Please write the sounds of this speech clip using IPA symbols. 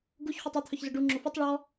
ɡuç χʷetˤœt̪ʰœçzʊ ɖu ŋ͡ǁofutˤ ɭɔ

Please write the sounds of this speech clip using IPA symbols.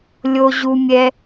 lʲo˦ʑu˦ mʲɛ˦

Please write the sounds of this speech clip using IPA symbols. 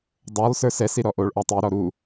dˤolˠ sə˞sɛ siɾɔʔoɭ ʔɔtˤi ɾɔɾu

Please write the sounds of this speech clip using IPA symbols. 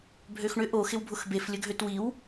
bʱøxɳʏ ʔo xɪwbʱʊxbef lʲəɡʱøtwiw

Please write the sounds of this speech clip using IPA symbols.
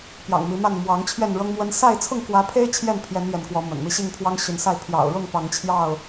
pjɑ̰˨˩ŋ mi˨˦ma˥˨n mwɑ˨˦ŋ t͡ɕʰɥɛ˥˨nɻɤ˦ŋmwə˦n sa˥˨ɪ̯ t͡sʰʊ˥˨ŋkwä˨˦pʰe˦ɪ̯ t͡ɕʰjɛ˥˨npʰjɛ˨˦n ɥɛ˨˦nkwɔ˨˦mə̰˨˩nmi˥˨ ɕi˥˨ŋpʰwɑ˦ŋɕy˨˦nsa˥˨ɪ̯ pʰjɑ̰˨˩ʊ̯ɻʊ˥˨ŋ pɑ˨˦ŋt͡ɕʰjɑ˥˨ʊ̯

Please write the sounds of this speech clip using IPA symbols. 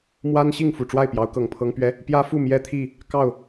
mwa˦nɕi˥˨ŋfu˨˩ ʈ͡ʂwa˥˨ɪ̯pjɑ˨˦ʊ̯kɤ˨˩ŋpʰɤ˦ŋ pɥɛ˦ | pjä˦fu˥˨mjɛ˦ t̪ʰi˥˨ | kɑ˥˨ʊ̯

